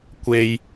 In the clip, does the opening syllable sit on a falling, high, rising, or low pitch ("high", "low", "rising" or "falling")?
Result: low